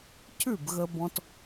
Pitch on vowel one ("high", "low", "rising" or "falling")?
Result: falling